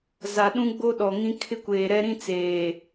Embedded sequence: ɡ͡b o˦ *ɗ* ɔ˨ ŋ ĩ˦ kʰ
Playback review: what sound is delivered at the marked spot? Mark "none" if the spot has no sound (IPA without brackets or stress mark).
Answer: ɗ